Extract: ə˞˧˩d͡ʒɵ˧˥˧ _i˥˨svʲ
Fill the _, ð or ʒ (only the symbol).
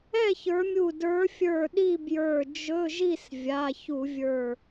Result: ʒ